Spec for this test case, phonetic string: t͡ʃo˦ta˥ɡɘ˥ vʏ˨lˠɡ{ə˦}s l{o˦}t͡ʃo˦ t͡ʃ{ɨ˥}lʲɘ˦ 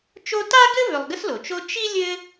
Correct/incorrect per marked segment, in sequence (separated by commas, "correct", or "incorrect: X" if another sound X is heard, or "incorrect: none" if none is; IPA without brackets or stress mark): correct, incorrect: o˩, incorrect: i˥